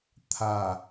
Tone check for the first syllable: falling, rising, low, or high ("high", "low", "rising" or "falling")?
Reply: low